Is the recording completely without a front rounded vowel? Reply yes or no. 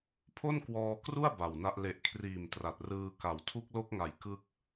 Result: yes